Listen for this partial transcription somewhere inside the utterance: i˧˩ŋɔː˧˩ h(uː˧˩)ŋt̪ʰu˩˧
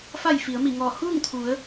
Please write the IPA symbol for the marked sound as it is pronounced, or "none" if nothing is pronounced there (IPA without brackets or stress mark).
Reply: uː˥˨